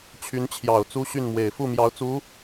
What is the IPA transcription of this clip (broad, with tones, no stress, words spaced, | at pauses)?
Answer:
t͡ɕʰy˧˥nt͡ɕʰjɑ˨˩ʊ̯ t͡su˥ɕy˥˩nmwe˨˩ɪ̯ fu˥˩mjɑ˧˥ʊ̯ t͡su˧˥